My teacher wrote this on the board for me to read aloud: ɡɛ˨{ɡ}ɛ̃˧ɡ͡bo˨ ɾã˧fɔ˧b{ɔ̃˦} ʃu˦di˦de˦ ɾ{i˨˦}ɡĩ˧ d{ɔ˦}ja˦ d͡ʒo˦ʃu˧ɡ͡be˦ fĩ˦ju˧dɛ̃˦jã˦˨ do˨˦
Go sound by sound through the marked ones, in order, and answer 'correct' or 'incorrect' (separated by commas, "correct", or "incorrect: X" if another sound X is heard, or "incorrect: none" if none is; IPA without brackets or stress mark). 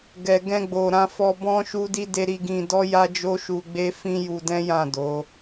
correct, correct, incorrect: i˧, correct